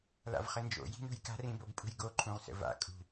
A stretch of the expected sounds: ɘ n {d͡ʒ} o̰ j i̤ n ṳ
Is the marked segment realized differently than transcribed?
no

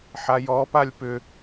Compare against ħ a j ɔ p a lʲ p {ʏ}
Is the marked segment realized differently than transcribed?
no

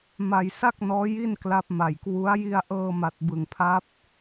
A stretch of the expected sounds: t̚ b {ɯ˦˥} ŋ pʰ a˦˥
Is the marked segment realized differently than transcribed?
yes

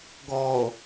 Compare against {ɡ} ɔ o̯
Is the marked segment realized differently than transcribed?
no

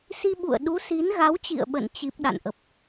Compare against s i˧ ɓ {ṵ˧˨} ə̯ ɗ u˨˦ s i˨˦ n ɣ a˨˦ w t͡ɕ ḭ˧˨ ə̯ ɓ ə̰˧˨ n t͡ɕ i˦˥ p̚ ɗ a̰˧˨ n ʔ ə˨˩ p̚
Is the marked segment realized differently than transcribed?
no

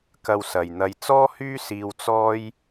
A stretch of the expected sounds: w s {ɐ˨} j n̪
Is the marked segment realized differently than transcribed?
no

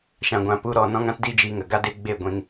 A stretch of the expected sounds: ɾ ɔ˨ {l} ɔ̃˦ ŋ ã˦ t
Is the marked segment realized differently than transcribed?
yes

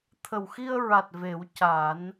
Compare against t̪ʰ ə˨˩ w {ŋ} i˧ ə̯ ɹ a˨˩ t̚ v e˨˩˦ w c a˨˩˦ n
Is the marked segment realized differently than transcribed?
yes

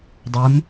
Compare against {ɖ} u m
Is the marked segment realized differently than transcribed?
yes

